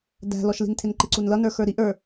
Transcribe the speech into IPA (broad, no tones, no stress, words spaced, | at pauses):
dæ̤lɔʃli̤ntʰɪn ǃɪǀunlʌnə˞ xə˞ɾiʔ ə˞